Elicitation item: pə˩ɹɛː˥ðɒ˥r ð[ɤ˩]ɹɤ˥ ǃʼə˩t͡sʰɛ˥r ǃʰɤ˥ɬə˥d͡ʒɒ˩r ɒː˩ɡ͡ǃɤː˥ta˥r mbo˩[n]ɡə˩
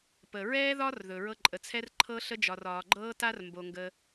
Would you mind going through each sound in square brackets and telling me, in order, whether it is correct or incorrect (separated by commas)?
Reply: incorrect, incorrect